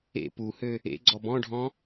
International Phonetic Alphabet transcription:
ḛ p u h ø | ḛ ɡ͡ǀ ɔ b ɔ̃ ɖʱ ɔ̃

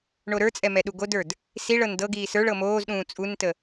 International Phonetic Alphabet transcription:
ɳ o ɾ ə˞ t͡sʼ ɛ m ɛ ɗ u ɡ o d ə˞ d | s i ɭ ɤ n d ɤ ɡ iː s ə˞ ɭ ɤ m oː z ɗ ũː t͡sʼ u n t ə

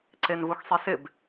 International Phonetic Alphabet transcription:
ǀ e n v u x sˤ i s ɪ b

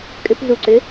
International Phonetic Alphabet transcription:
kʼ ʏ p z u ǀ ʏ

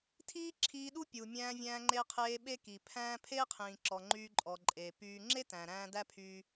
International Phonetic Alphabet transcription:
tʰ iː˥ ǁʰ iː˧ ɗ u˥ pʲ u˩ mʲ æ̃ː˧ vʲ æ̃ː˧ ŋ͡ǃ e˧ qʰ eː˧ ɓ e˥ k i˩ pʰ æ̃ː˥ pʰ eː˥ qʰ ĩː˩ ǁ ɔ˩ ŋ͡ǃ yː˧ ǃʼ ɔ˩ ǃʼ e˩ p yː˧ ŋ͡ǁ e˥ t æ̃˩ ɾ æ̃ː˧ d æ˥ pʰ yː˧

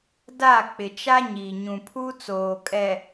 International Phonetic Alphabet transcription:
d a˦˨ k͡p ɪ˨ t͡ʃ a˦ ɲ i˨ ɲ ũ˨ pʰ u˦ t͡s oː˨ kʼ ɛ˨

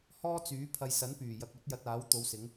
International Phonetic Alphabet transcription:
h ɔː˥ t͡s yː˨˥ pʰ ɐ˧ j s ɐ˨˥ n p yː˨˩ j ɐ˨ k̚ ɵ˧ t̚ j ɐ˧ t̚ aː˨˥ w t̪ o˨˧ w s ɪ˨˧ ŋ

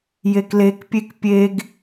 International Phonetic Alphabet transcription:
j e k l e k pʲ e k pʲ e ɡ

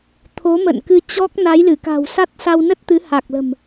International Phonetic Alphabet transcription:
t̪ʰ o˨˦ m ə̰˧˨ n k ɨ˧ t͡ɕ ɔ˦˥ k̚ n a˨˦ j l ɨ˧˩ k a̤˨˩ w s a˦˥ t̚ s a˧ w n ə˦˥ t̚ t̪ ɨ˨˦ h a˨˩ k̚ l ə̤˨˩ m

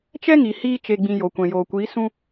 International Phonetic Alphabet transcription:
t͡ʃ ɛ˦ ŋ i˨ h iː˦ t͡ʃ e˨ ɡ͡b ĩ˨ j o˨ kʷ ɛ̃˨ j oː˨ kʷ iː˨˦ s ũ˧

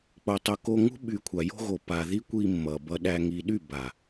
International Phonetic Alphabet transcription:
k͡p o˨ tˤ u˨ k o˧ ŋ ṳ˦ ɓ y˨ kʷʰ a˨ j o̤˧ ɣ o˨ p a˨ ð i˦ kʷ i˧ mː ʌ˨ b ʌ˧ ɗ æ˧ ŋ i˨ ɗ y˦˨ b a˨

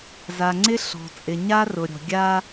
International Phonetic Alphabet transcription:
z a˨ ŋ͡ǀ ɪ˦ ɬ ɔ̤˨ t͡sʼ ɪ˨ ɲ a˦ r ʊ˨ ɾʲ ɔ̤˨ ɡʲ a˦

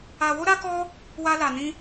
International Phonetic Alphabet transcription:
a˧ w o˦ ɾ a˦ k ɔ˦ | w a˦ l a˧ n ĩ˦

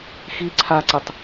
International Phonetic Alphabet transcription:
x i ǀʰ a ǀ ɛ tˤ

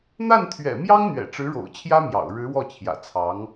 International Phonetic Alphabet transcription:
n̪ a˥˩ n t̪ʰ ɥ ɛ̰˨˩ m j ɑ˥ ŋ n̪ ɥ ɛ̰˨˩ ʈ͡ʂ ɻ̩˧˥ ɻ o̰˨˩ ʊ̯ t͡ɕʰ j ä˥ m j ɑ̰˨˩ ʊ̯ ɻ ɻ̩˧˥ w ɔ˥˩ t͡ɕʰ j ä̰˨˩ t͡sʰ ɑ˧˥ ŋ

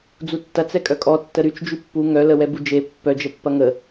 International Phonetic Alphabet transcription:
d͡z u tː ɐ t͡s ɛ kʼ œ kʼ ɔ tː ə ɾ y t͡ʃ d͡ʒ y pː u ŋ œ l ə w ɛ b u d͡ʒ e pː œ d͡ʒ ə pː ɐ ŋ ə

